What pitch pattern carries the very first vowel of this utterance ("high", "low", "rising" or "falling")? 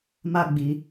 high